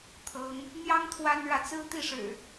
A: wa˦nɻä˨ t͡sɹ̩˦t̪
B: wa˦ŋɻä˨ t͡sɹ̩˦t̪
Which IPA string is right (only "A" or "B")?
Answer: A